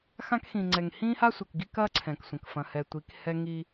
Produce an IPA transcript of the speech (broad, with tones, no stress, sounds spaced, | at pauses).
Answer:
x ã˦ k x ĩ˨ ŋ͡ǀ ɛ˨ ŋ h ĩː˦ h a˦ sʷ ɛ˨ k ɡ i˦ k ɐː˦ ǀʰ ɛ̃˨ k sʷ ɐ̃˨ k f ɐ̃˨ h ɛ˨ tʷ i˨˦ k h ɛ˦ ŋ i˦